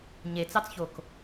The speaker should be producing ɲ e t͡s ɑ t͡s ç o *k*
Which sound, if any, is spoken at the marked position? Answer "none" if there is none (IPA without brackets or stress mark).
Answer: k